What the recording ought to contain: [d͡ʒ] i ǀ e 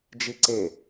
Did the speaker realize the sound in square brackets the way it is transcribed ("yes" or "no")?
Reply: yes